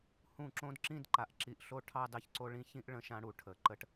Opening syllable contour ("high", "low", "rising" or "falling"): falling